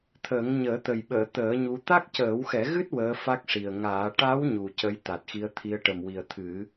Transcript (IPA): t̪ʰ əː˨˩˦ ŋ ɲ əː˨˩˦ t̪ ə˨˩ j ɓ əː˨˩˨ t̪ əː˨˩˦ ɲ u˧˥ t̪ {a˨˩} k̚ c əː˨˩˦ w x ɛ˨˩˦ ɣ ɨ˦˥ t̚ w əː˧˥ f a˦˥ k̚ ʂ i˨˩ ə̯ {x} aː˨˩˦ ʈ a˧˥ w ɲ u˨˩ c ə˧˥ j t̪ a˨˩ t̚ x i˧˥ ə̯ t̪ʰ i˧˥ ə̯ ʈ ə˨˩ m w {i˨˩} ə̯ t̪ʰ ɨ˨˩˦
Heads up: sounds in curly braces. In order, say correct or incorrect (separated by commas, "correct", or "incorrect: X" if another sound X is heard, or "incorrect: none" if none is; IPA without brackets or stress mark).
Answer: incorrect: a˦˥, incorrect: ŋ, correct